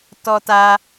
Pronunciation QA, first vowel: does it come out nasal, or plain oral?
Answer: oral